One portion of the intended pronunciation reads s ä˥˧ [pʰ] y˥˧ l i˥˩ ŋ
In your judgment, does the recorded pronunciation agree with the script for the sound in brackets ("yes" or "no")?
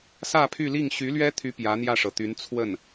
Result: yes